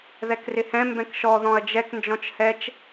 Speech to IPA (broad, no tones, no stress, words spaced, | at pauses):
ðɛkrɪhɛ̃ mbɛ̃kʃɔ ðɔ̃ɐ̯d͡ʒɛk nd͡ʒɔ̃t͡ʃhɛt͡ʃ